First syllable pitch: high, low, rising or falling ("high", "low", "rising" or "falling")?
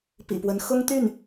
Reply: low